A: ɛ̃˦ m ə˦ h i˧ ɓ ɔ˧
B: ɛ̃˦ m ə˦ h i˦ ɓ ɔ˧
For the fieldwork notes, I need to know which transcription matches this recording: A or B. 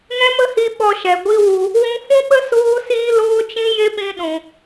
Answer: A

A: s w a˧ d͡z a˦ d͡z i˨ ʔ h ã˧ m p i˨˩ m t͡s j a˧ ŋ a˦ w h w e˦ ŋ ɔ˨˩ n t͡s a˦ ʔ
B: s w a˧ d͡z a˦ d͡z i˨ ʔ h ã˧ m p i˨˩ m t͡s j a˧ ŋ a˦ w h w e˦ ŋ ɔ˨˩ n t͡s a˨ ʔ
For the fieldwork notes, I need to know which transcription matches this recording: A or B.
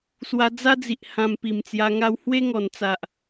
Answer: B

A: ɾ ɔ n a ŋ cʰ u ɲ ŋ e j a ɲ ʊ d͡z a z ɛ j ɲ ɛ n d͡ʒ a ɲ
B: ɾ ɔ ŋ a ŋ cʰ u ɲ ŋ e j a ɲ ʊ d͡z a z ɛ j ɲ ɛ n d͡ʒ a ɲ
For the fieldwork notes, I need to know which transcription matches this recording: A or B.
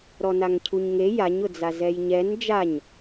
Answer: A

